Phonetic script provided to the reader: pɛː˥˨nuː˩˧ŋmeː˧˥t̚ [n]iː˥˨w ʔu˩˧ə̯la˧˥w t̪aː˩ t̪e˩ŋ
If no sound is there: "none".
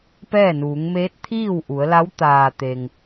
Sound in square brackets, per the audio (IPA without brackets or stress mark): t̪ʰ